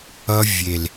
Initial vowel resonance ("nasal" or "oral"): oral